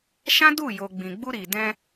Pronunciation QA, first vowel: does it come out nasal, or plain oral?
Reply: nasal